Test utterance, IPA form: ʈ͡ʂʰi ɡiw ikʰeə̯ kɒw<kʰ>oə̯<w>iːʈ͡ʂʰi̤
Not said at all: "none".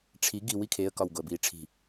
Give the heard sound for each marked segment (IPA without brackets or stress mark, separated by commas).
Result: ɡ, b